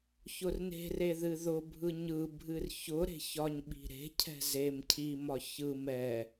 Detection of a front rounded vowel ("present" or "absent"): absent